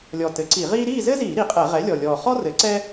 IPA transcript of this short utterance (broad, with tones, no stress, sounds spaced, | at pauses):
lʲ ɔ˨˩ t ɘ˩˥ ǀ i˧˩˧ ʁ iː˥ ɾ iː˥˨ z ɘ˥ z iː˧˩˧ ɾ i˩˥ qʼ ɛ˧˩˧ ʁ ɛ˩˥ lʲ ɔ˨˩ lʲ ɔː˨˩ χ ɔ˥ r ɘ˩˥ ǀ ɛ˥